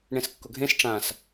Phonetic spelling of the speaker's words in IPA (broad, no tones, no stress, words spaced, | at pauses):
ɳẽskːʊɡʱẽs ʈ͡ʂãs